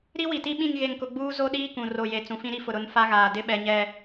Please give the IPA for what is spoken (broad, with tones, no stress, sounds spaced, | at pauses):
ɾ i˦ w i˨ t i˦ ɓ ĩ˦˨ ŋ ɣ e˨ ŋ k ʊ˨ ɡ͡b uː˦ z o˦ ɗ iː˦ k ũ˨ r o˨ j e˨ t͡s ũ˨ f ĩ˦ ɾ i˦ f ʊ˨ ɾ ʊ˦ n f a˦ ɣ aː˨ d ɪ˦ ɓ ɛ˨ ɲ ɛ˨